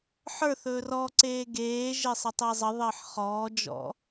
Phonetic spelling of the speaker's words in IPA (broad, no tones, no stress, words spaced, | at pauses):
ħə˞θɵːr ɔ ǀeːɡeːʒe sˤətˤezˤəðˤəːħ χɔːd͡ʒɔ̰